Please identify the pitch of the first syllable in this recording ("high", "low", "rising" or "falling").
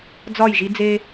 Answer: falling